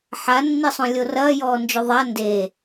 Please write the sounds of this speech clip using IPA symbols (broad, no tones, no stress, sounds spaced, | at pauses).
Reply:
ħ a nː i sˤ õ lʲ o r ɐː j ɔː n d͡ʒ o ðˤ a n d e